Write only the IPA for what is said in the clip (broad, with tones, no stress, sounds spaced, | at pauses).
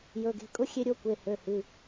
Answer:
j ɵ˩˧˩ ɡ e̤˩˧˩ kʼ ʊ˦˥ xʲ e˦˥ ɾʲ o˦˥ kʷ e˩˧˩ h ø˩˧˩ h ɨ˩˧˩